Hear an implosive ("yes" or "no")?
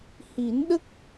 yes